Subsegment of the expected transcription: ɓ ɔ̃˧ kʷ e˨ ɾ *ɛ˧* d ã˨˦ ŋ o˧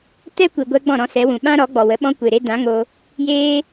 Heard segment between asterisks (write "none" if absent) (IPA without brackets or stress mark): e˧